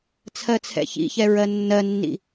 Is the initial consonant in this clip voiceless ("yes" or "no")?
yes